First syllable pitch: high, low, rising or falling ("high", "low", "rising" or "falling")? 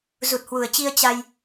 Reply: low